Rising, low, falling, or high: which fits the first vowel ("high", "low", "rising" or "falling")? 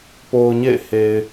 low